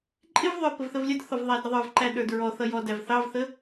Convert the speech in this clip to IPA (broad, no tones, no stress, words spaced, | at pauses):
ǃʼɪvðˤə˞ pəvθəvlʲədθɔv ðˤædɾəðˤə˞vǃæ ɗə˞dɹɔθʌ jɔdæv θɑvθə